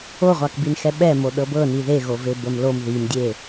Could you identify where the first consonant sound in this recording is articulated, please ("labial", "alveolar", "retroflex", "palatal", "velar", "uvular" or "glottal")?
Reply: uvular